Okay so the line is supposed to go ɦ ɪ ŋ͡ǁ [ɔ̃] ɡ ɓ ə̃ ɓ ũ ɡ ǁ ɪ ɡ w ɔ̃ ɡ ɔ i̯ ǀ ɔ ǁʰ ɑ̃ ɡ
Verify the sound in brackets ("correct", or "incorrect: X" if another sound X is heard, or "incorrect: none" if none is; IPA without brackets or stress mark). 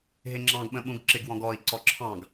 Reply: incorrect: ɑ̃